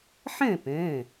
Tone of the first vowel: falling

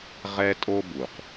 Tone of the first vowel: high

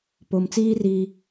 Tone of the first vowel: low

